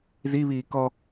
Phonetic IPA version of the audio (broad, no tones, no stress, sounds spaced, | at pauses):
z i β iː k ɔ